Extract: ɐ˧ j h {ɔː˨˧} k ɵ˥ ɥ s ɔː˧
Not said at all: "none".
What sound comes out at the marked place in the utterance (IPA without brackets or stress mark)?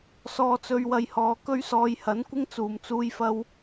ɔː˨˧